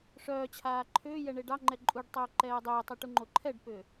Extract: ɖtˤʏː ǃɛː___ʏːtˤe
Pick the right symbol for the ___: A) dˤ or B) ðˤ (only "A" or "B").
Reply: A